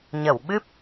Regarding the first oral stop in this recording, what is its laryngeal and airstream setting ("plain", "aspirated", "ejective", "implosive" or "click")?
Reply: implosive